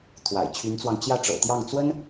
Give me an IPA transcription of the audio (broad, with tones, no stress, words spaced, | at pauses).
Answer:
t̪ʰwa̰˨˩ɪ̯t͡ɕʰy˧˥nt͡swɑ˧ŋ t͡ɕjä˥˩ʈ͡ʂɤ̰˨˩t̪jɑ˥˩ŋ t͡swə˥n